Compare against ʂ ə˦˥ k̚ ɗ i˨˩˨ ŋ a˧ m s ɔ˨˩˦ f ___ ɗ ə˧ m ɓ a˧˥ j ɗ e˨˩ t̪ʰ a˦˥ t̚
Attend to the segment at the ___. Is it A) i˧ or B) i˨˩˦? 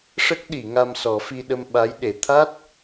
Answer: A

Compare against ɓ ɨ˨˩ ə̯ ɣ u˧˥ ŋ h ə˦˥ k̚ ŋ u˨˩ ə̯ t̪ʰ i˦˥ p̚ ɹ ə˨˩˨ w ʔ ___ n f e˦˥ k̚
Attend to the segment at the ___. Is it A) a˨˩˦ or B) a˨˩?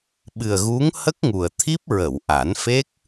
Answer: A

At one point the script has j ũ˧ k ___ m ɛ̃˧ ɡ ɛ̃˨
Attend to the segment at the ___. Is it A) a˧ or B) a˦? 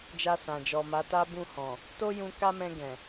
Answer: B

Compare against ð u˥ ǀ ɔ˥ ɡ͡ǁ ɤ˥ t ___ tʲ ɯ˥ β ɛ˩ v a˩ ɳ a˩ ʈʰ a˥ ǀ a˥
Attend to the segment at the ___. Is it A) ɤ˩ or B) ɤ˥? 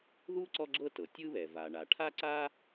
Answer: A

